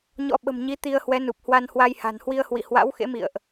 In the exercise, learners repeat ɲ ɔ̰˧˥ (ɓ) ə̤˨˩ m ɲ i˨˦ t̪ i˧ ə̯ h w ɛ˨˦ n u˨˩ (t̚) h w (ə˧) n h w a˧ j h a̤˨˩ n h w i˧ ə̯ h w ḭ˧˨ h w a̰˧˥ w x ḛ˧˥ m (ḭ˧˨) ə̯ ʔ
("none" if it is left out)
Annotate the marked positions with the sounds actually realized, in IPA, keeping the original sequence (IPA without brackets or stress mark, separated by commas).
ɓ, p̚, a˧, ḭ˧˨